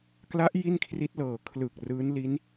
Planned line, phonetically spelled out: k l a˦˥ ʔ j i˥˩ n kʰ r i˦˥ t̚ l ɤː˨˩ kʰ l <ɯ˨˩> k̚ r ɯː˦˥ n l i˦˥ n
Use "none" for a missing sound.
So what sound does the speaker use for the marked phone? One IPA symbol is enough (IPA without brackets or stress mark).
ɯ˨˩